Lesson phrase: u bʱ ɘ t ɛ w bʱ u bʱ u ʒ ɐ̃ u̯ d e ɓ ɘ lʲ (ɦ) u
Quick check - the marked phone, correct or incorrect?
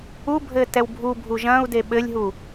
correct